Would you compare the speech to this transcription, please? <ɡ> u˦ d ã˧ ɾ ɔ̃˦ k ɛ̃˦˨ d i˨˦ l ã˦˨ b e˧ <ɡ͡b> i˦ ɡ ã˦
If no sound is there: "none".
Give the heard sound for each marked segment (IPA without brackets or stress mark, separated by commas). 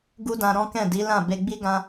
ɡ, ɡ͡b